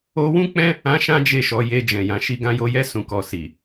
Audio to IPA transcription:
o˧wũ˦k͡pɛ̃˦ | ã˦ʃã˦d͡ʒe˦˨ʃɔ˧ je˧d͡ʒɛ̃˨jã˧ ʃi˧ɡã˧jo˧jɛ˦ sũ˧kɔ˧ si˨

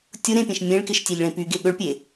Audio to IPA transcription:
tʲʊ ɾẽpʲẽʃ mʲẽɭkɪʃtʲeʎɭẽ pyɡe ɠʊɭ pʲe

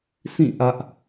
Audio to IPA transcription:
sĩ˦˨ ʔä˦ʔ

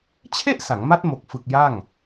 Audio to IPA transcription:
t͡ɕʰe˥˩ʔ sa˩˦ŋma˦˥t̚ mo˨˩k̚fɯ˨˩k̚ ja˥˩ŋ

